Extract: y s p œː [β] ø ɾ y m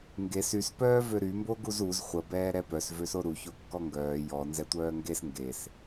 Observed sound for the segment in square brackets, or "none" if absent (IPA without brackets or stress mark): v